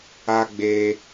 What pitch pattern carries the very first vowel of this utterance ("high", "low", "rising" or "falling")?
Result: high